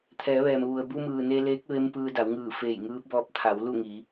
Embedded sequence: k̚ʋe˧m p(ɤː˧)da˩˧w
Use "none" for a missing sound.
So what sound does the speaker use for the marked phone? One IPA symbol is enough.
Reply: ɯː˧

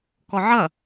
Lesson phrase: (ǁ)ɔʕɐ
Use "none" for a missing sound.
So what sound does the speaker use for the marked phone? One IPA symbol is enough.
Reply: k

